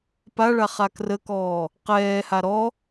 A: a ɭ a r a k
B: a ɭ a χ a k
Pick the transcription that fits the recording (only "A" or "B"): B